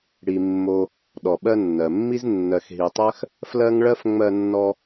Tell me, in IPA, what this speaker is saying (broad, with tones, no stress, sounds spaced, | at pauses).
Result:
ɽ i˨ mː o˨ | ɗ ɔ˩ ɓ ɜ˦ nː ɜ˩ mː i˥ z nː ɜ˨ x ɦ i˨ tˤ ɜ˥ x | f l ɜ˥ ŋ ɭ ɜ˥ f ŋ͡m ɜ˦ nː ɔ˦